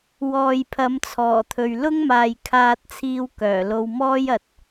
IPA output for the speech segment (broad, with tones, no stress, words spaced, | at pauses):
wɔː˨jpʰɐ˨˧mt͡sʰɔː˨˩t̪ʰɵ˨ɥ lʊ˥ŋmaː˨jkʰaː˧t̚t͡sʰiː˧w kœː˨˩lo˧w mɔː˥jɐ˨t̚